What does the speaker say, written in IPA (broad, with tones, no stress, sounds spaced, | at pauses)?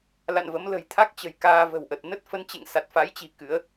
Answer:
l a̰˧˨ n v ə˨˦ m l ə̤˨˩ j t̪ʰ a˦˥ k̚ t͡ɕ ə̤˨˩ j k aː˧ v ə̤˨˩ w ʔ ə˨˩ t̚ n ə˦˥ t̚ f ə˨˦ n t͡ɕ ḛ˧˨ ŋ s a˨˩ t̚ f a˨˦ j t͡ɕ i̤˨˩ k ɨ˨˦ ə̯